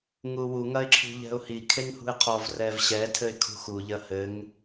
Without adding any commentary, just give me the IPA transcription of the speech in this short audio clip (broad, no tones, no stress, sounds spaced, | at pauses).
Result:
ŋ u w u ŋ ɐ ɪ̯ ǁʰ ṳ ʎ ɛ̤ ʊ̯ h i kʰ e ŋ h ṳ ɪ̯ qʰ ɔ v r ɛ v ɕ ɛ tʰ ɘ ɪ̯ kʰ ṳ x u ʎ ɐ h ɘ ŋ